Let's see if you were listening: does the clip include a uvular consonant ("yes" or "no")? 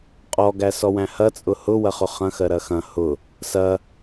yes